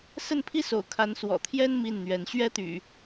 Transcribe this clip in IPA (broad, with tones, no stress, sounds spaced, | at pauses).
s ə˥˨ n pʰ i˦ s o̰˨˩ ʊ̯ kʰ a˨˦ n s w ɔ̰˨˩ t̪ʰ j ɛ˦ n m i˥˨ n n̪ ɥ ɛ˨˦ n ɕ ɥ ɛ˦ t̪ y̰˨˩